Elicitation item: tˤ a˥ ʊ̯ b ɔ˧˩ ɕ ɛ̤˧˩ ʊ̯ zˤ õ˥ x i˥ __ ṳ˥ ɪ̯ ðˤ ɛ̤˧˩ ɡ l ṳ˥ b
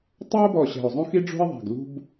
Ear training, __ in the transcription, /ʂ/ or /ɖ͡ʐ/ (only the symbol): ɖ͡ʐ